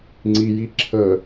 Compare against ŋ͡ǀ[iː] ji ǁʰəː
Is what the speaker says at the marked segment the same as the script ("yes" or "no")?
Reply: no